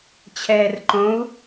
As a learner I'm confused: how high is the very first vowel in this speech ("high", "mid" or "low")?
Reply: mid